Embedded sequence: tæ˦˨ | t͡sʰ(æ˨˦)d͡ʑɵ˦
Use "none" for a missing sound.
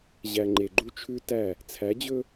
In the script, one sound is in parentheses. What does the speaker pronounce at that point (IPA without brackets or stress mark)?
æ˨˦